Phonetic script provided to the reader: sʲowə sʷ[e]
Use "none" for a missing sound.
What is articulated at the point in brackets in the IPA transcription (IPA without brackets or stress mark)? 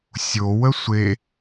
e